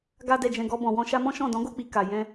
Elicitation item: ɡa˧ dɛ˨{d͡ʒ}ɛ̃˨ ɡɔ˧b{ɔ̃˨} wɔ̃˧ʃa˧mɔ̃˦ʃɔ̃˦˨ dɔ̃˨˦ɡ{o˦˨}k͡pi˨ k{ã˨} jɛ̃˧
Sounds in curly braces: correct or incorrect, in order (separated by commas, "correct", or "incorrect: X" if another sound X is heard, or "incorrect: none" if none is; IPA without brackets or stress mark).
correct, correct, correct, incorrect: a˨